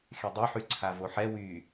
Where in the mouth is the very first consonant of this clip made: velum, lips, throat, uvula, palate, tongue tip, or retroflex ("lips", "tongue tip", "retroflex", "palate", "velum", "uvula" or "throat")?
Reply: velum